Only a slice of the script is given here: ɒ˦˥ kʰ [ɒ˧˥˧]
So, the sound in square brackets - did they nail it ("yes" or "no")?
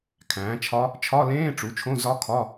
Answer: yes